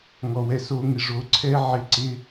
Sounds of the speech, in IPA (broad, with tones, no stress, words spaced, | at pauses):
ŋɔ˨wɛ˧so˧ŋɪ˨ ʐo˨˦ǀʰɛ˦ ʕɪ˧ ǀɪ˦